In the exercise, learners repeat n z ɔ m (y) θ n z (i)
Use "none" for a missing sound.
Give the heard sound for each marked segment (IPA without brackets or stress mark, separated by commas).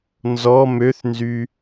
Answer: ø, y